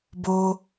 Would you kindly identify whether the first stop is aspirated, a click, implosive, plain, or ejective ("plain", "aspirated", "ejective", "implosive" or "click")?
plain